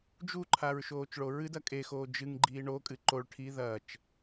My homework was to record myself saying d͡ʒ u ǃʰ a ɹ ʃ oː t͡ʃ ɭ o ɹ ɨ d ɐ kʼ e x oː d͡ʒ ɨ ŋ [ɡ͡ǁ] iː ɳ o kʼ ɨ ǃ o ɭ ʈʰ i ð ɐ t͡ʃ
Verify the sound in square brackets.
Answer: incorrect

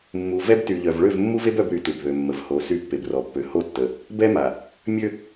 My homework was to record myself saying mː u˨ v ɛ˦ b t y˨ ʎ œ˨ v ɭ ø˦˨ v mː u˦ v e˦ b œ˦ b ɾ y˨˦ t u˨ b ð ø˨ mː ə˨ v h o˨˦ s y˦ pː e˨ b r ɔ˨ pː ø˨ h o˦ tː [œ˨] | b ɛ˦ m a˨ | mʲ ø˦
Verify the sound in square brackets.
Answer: incorrect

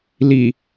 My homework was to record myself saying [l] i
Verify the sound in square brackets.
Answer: correct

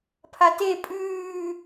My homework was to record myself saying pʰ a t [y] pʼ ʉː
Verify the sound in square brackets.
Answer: incorrect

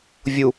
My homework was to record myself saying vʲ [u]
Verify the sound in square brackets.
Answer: correct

